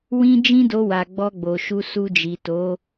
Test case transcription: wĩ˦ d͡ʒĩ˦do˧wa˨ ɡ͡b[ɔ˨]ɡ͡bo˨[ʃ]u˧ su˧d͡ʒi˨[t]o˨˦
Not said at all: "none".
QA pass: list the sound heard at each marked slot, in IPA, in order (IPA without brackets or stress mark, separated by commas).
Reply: ɔ˧, ʃ, t